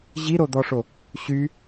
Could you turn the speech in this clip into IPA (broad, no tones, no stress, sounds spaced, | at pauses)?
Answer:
ʑ i ɾ o d̪ ɔ ʂ o | ɕ y